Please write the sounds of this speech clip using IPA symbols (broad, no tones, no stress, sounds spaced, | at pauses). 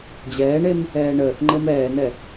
d͡ʑ ɛː ɳ e m | ɛː ɳ əː θ ŋ͡ǃ ɤ m ɛː n ɛ